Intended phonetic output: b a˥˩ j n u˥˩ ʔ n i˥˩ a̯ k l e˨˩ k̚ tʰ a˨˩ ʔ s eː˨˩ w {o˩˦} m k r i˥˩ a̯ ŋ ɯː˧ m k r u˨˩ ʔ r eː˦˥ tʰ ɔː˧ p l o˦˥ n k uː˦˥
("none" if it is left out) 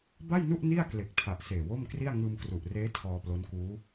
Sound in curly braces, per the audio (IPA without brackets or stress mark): o˥˩